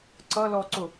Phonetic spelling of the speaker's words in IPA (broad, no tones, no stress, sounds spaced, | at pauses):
ǀ ʌ l ɔ ǀ ʊ